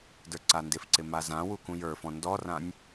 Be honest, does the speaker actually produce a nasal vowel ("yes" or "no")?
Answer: yes